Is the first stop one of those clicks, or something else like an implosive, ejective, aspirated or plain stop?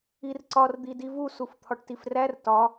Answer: click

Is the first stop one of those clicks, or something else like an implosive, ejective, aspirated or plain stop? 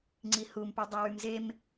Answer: click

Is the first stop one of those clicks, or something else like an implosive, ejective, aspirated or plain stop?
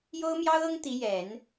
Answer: plain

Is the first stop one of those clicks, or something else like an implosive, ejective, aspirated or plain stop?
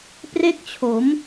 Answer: plain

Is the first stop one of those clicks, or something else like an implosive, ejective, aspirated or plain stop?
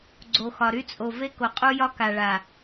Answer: click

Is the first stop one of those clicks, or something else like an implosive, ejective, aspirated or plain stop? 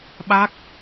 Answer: implosive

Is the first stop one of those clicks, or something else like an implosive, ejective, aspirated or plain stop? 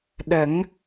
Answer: implosive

